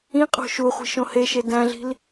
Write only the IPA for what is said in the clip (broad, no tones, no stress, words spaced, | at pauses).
ĩqʼo̤ ʃuχʷi̤ʃõ heʃe dæ̃ɮi̤l